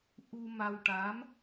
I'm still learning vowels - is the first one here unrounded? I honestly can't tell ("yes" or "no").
no